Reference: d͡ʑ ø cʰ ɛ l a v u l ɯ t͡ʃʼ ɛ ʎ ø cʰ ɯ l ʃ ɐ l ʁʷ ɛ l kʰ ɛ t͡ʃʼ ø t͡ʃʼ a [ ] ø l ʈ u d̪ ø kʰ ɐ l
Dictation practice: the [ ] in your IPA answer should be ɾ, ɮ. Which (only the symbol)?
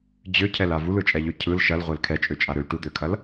ɾ